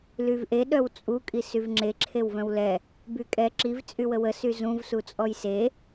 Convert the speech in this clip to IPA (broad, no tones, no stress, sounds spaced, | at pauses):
l y v ʔ e ɗ œ w t͡sʼ u kʼ i s y v ŋ͡ǁ e ǁʰ e w v œ̃ w l ɛ | b y kʼ ɛ ǁ i v t͡sʼ y w ə w ə s y z ũ v s u t͡sʼ ɔ j s e